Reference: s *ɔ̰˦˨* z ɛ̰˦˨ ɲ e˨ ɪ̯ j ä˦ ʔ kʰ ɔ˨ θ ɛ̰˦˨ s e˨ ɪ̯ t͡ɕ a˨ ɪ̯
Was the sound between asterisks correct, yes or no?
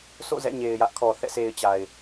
no